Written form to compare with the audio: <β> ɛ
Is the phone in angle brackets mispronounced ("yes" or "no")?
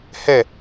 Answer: yes